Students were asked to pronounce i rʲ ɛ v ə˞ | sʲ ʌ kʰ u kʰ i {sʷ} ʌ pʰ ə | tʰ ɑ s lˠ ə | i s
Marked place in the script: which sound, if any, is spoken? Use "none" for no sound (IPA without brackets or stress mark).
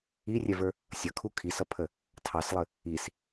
s